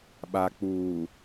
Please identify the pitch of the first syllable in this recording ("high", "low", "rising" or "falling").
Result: low